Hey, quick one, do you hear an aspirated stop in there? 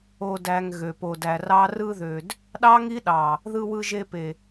no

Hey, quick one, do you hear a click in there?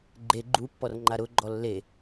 yes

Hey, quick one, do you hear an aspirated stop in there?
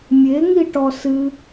no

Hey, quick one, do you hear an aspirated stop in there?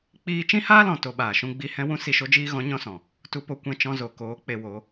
no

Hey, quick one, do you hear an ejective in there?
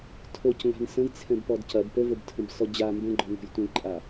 yes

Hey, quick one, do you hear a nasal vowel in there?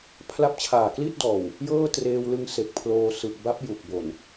no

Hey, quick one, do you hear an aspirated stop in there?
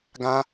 no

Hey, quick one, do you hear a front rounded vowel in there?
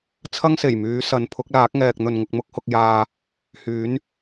yes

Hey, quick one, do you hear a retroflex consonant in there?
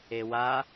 no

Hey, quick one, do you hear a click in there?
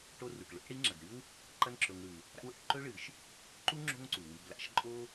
yes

